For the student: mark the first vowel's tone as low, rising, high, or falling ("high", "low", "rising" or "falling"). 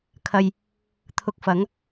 low